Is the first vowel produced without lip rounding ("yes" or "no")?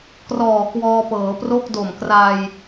no